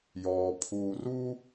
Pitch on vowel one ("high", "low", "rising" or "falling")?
low